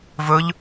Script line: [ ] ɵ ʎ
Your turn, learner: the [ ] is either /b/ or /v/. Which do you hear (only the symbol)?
v